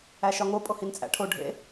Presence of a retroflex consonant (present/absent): present